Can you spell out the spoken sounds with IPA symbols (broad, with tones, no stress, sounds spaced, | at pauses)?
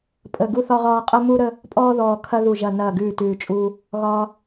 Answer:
pʼ ə˨˩ ɡ u˧ θ ɒ˧ ʁ ɒː˧ qʼ ə˧ m u˧ ɾ ə˧ | pʼ ɔː˧ ð ɔː˨˩ kʰ ɐ˧ ð u˨˩ ʒ ɐ˨˩ n ɐː˨˩ ɡ ʉː˨˩ t ʉː˨˩ t͡ʃʼ uː˧ | ɣ ɒː˧